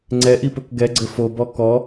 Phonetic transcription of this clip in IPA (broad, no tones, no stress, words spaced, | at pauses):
ŋ͡ǀɛʔipɵk ɡɛɡ͡ǀɘ fobɔ kɔ